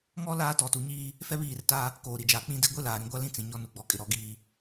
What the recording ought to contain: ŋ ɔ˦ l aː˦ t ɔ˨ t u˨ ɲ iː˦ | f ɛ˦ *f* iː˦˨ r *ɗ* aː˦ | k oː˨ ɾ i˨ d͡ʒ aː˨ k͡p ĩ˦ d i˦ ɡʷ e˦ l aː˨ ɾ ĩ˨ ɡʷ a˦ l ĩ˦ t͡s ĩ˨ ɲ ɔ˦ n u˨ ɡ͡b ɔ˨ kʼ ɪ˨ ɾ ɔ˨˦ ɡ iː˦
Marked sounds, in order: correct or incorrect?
incorrect: β, incorrect: t

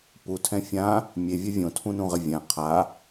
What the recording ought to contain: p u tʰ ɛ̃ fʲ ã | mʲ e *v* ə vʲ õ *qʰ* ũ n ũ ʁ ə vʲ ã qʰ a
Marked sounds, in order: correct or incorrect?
incorrect: vʲ, incorrect: tʰ

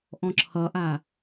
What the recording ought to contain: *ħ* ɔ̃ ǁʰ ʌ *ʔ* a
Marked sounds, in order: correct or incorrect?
incorrect: ʔ, correct

